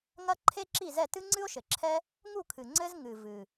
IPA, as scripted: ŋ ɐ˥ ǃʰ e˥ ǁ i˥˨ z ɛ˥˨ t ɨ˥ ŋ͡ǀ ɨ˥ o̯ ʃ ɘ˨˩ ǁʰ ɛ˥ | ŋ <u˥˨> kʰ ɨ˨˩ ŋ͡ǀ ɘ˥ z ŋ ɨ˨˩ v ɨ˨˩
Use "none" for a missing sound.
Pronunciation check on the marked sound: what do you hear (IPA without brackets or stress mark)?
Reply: u˥˨